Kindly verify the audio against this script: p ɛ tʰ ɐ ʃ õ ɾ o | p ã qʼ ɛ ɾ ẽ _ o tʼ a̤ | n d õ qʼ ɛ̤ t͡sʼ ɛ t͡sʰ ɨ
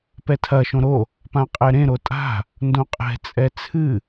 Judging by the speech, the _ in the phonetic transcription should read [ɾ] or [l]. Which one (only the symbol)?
ɾ